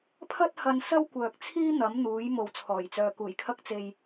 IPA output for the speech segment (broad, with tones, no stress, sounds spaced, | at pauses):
pʰ ɐ˥ t̚ h ɐ˧ n s ɐ˥ w kʷ œː˨ k̚ t͡sʰ iː˥ n̪ ɐ˨˥ m n̪ uː˨˥ j m o˨ w t͡sʰ ɔː˨˩ j t͡s œː˨ k uː˨˩ j kʰ ɐ˧ k̚ t͡s e˨ j